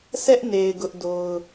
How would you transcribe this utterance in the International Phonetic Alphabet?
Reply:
sʰ ɛ˦ ʔ n e˨ ɪ̯ ɡ ʊ˦ ʔ d o˦ ʊ̯

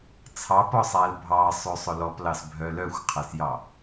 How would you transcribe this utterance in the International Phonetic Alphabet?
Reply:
t͡sʰ ɑ p ɔ sˤ æ l bʱ ɑ sˤ ø sˤ ɵ l ɔ p l ɑ s bʱ œ l œ xʷ qʰ æ s j ɑ

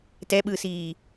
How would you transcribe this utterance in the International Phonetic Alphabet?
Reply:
t ɛ ɓ ɯː s iː

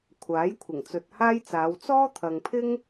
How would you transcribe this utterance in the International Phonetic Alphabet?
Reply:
kʷʰ aː˨˥ j kʷʰ ɪ˨˩ ŋ t͡s ɵ˨ t̚ h aː˥ j t͡s aː˨˧ w t͡s ɔː˥ t̪ʰ ɐ˨ ŋ pʰ ɪ˥ ŋ

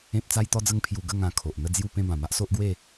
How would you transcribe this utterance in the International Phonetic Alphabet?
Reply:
ẽ˦ p̚ t͡s a˦ j t̪ ɔ˦ d͡z ə˦ ŋ pʰ j u˧ ɡ ə˥˧ ŋ ã˧ kʰ o˨ ʔ n̪ ə˥˧ d͡z j u˥˧ p ẽ˥˧ b ã˨˩ m a˦ ʔ s o˦ ʔ ɡ w e˥˧

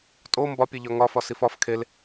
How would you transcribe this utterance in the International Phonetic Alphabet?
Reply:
tʼ o m b ɒ pʲ e ʎ ɒ ŋ ɒ f ɒ s i f ɒ f kʰ e l

